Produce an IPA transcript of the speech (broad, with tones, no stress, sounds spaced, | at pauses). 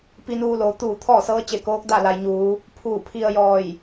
p i˧ n uː˧ l oː˩ t̪ uː˧˩ t̪ʰ ɔː˥˨ s ɤː˧˥ t͡ɕ e˧˩ k oː˧˥ k̚ d a˥˨ l a˩ j ɲ uː˩˧ | pʰ uː˧˩ pʰ i˧ ə̯ j ɔː˧˩ j